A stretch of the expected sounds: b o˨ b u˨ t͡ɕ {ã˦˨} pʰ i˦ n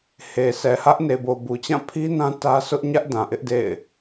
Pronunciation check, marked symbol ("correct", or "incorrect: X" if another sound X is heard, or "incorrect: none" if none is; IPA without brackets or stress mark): correct